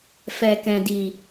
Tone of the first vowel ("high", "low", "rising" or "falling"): low